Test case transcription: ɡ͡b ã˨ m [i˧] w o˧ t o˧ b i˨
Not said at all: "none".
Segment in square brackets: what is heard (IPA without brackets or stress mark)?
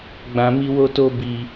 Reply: i˧